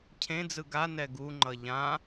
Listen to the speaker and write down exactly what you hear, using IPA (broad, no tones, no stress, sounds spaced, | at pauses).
cʰ ẽ d͡z ɯ ɡ a n ɛ ɡ u ŋ͡ǃ ʌ ʎ ã